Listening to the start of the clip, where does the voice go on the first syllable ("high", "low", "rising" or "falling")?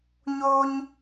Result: high